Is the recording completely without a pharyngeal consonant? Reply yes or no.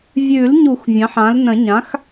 no